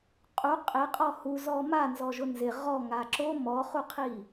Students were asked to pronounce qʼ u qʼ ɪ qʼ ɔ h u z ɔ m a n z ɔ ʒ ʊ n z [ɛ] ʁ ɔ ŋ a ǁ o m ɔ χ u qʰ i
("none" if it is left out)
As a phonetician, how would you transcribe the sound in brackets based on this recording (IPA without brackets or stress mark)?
ɪ